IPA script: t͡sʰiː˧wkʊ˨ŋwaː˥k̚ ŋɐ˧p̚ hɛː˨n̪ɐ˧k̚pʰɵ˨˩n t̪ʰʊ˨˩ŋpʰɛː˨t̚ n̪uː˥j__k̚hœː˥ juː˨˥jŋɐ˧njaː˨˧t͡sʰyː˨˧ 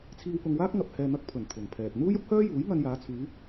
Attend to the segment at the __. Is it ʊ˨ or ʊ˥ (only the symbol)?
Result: ʊ˥